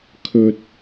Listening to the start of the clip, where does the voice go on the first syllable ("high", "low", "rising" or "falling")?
low